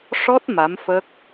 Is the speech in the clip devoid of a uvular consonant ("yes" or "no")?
yes